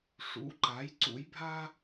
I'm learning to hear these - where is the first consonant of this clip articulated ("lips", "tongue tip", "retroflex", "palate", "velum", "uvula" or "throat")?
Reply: retroflex